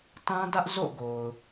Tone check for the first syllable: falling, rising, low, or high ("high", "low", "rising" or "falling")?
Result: high